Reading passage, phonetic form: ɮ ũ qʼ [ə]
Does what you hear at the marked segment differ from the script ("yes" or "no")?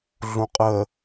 no